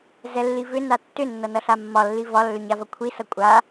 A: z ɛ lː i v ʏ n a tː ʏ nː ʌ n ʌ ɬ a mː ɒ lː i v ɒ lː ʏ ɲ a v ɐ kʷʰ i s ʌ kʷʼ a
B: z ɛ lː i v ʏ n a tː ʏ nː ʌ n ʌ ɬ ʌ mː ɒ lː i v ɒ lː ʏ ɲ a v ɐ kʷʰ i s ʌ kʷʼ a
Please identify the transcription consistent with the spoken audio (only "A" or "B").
A